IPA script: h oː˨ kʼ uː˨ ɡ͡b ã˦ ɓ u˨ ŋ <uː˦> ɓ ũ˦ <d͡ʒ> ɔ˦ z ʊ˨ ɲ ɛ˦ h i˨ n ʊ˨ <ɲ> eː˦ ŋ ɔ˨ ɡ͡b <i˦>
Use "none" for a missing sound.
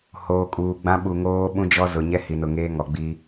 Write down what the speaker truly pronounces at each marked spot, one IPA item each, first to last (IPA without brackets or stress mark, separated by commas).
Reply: oː˦, d͡ʒ, ŋ, i˦